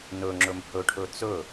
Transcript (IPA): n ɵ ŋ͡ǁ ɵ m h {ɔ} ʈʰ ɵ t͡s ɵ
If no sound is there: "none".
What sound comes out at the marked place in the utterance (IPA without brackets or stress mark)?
ɵ